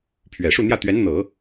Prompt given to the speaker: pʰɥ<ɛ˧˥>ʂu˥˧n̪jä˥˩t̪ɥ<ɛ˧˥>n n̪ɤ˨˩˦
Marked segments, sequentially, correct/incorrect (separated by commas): incorrect, correct